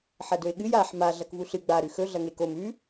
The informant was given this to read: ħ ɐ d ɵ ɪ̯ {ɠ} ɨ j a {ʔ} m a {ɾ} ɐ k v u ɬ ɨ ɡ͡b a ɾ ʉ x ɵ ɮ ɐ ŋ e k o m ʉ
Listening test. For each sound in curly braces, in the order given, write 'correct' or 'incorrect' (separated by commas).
correct, incorrect, incorrect